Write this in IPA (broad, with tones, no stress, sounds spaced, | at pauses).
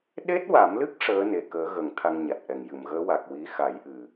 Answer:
ɗ e˦˥ t̚ w a˨˩˦ m l ɨ˦˥ k̚ ʂ əː˧˥ n e˨˩ k əː˨˩˦ ɣ ə˨˩˨ ŋ t̪ʰ a˧ ŋ ɲ a˨˩ t̚ ʔ ɛ˨˩ ŋ j ɨ˨˩˨ m ɣ əː˧˥ w a˨˩ k̚ w i˧˥ x a˨˩˦ j ʔ ɨ˨˩